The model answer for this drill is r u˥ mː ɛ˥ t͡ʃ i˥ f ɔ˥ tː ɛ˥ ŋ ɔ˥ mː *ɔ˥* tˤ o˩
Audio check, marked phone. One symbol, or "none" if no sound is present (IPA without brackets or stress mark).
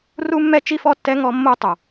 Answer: o˥